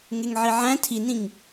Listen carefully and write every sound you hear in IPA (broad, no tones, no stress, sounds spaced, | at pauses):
ŋ e ŋ ʕ i ʕ æ̃ tʰ i n ĩ ŋ